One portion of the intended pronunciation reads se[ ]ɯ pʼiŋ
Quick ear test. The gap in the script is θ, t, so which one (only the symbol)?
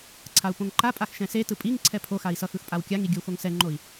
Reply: t